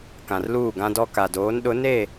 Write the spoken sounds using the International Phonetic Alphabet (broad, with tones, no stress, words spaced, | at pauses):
kã˨rluː˦˨ɡã˦dɔ˦ ka˨doː˨˦nɗʊ˨˦ ne˦˨